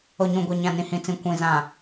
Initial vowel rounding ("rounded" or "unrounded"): rounded